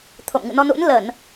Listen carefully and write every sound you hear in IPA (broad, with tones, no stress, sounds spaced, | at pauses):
t̪ʰ o̰˧˨ m ŋ ɨ̰˧˨ n ɔ˧ n ṵ˧˥ n l ə˧˩˨ n